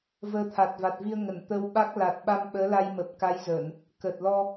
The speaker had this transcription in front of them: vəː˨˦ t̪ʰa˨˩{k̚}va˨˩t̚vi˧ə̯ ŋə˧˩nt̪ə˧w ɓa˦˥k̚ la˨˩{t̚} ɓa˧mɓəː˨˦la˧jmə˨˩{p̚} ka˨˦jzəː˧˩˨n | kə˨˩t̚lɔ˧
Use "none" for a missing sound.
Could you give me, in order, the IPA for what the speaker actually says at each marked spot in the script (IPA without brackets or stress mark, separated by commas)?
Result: t̚, t̚, p̚